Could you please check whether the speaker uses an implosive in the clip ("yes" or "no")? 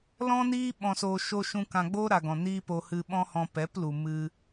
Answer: yes